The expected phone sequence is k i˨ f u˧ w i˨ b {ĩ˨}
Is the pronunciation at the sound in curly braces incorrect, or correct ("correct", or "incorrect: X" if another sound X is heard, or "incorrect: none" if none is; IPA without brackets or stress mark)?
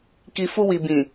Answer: correct